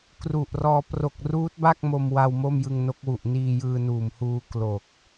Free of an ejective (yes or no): yes